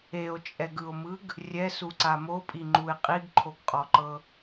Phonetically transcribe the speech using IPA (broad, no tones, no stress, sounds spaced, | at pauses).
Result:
e o̯ t͡ʃʼ ɛ ɡ ɯ o̯ m ɯ ɡ | rʲ ɛ s u ǀ a m o pʼ i ŋ͡ǃ u e̯ qʼ i ɡ ǃʰ o ɡ qʼ ɔ ǃ ɤ